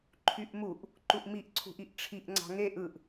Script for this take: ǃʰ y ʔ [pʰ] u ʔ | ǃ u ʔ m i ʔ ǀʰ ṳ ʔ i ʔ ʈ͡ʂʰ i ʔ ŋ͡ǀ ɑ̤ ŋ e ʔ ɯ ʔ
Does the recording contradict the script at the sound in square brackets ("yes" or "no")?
yes